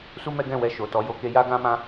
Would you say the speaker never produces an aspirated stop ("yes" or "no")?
yes